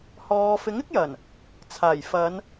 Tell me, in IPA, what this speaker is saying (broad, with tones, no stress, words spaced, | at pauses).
hɔː˨˧ fɪ˨˥ŋɪ˥k̚jɐ˨˩n | t͡sʰaː˨˩jfɐ˨˧n